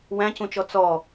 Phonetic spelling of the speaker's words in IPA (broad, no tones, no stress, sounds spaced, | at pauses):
w æ̃ c ũ t͡ʃ ɔ t͡s ɔ